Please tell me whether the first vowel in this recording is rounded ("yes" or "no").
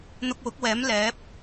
yes